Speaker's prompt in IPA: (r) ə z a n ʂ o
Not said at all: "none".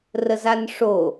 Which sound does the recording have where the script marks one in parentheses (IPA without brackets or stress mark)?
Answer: r